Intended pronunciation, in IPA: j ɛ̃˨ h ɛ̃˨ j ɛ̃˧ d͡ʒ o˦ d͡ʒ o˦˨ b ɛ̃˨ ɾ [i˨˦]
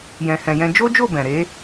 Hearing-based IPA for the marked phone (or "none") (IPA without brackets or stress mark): e˨˦